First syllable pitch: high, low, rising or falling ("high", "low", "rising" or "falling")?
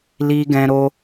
high